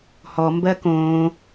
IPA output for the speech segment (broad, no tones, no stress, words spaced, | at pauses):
hɔmbɜ kõː